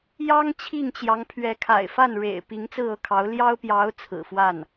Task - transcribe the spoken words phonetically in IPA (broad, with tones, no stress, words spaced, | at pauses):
jɑ˥ŋ t͡ɕʰi˥˩ŋt͡ɕjɑ˧˥ŋ pʰɥɛ˧˥kʰa̰˨˩ɪ̯fa˥˩n ɻḛ˨˩ɪ̯ pi˧˥ŋt͡sɹ̩˥˧ɤ˥˩kʰɑ˧˥ʊ̯ ljɑ˥ʊ̯pjɑ˧˥ʊ̯ t͡sʰɹ̩˨˩fwa˥˩n